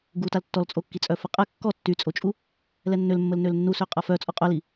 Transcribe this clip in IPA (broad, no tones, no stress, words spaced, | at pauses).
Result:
ɡutal tːɔlt͡sʼokːi t͡sʼœfəqʼɛ kːɔ tːyt͡sʼot͡ʃʼu | lɛnːølmːəl nølnːu søqʼafœ t͡sʼɔqʼœli